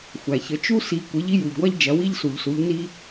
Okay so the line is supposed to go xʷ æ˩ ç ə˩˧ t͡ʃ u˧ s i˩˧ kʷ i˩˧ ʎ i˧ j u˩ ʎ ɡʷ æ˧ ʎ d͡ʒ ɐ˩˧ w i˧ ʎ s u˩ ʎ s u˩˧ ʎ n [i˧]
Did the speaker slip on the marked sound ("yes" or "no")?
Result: no